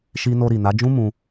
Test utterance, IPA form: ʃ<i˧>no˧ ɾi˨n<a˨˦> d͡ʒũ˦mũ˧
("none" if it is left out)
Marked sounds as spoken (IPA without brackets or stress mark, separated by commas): i˧, a˨˦